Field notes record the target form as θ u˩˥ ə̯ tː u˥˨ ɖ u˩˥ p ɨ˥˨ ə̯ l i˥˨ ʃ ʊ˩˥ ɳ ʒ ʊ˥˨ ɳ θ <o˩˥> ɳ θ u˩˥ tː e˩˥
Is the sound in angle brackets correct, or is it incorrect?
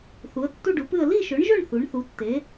incorrect